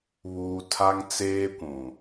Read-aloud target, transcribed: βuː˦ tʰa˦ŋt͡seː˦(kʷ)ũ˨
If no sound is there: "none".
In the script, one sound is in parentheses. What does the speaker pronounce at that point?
kʷ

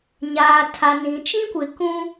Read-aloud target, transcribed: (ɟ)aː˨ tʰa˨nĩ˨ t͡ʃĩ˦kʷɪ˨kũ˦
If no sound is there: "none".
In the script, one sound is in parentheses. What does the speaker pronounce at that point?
ɲ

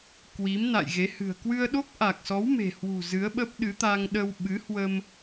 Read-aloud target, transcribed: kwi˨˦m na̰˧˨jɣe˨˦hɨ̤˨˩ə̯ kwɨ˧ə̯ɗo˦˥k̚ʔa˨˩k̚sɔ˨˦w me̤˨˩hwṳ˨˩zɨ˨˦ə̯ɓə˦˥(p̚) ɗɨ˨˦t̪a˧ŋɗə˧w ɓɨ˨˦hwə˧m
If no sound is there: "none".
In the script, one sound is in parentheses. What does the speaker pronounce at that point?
p̚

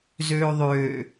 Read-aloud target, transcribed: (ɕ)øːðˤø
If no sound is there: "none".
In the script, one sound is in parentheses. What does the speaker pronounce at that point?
z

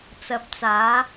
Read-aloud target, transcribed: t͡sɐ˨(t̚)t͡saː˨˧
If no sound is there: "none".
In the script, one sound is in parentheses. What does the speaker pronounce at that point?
p̚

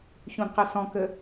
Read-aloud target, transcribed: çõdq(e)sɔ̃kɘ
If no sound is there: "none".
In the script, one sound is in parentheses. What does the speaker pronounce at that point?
e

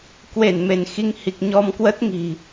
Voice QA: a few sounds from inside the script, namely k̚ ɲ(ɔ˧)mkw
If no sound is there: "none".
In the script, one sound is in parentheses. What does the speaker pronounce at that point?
ɔ˧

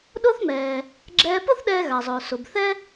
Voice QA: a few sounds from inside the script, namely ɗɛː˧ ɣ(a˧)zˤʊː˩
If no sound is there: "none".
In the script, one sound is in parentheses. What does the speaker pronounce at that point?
a˩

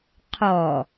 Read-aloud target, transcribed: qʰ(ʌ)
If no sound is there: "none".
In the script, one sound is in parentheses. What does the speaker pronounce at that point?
ɔ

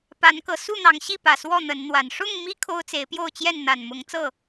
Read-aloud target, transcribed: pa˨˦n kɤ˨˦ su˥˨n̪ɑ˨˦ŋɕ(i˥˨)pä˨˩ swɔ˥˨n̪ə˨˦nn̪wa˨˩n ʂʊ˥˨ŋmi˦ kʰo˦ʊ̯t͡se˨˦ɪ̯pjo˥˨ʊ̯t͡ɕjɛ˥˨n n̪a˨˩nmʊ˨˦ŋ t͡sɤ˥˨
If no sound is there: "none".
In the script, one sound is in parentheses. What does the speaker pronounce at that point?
i˥˨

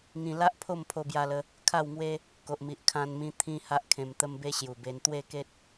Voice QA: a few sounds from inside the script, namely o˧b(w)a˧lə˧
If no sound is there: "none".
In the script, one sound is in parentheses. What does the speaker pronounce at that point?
j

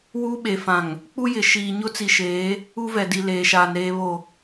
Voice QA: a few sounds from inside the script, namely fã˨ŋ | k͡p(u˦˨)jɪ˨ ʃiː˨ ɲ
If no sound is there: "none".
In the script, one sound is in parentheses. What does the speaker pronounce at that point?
u˦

